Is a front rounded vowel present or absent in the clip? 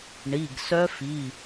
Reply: present